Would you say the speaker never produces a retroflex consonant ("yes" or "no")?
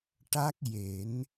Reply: no